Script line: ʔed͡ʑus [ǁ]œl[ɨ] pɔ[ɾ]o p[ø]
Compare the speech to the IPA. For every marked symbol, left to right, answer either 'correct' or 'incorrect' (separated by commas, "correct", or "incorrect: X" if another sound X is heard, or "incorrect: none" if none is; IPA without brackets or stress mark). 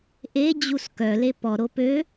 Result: incorrect: k, incorrect: e, correct, correct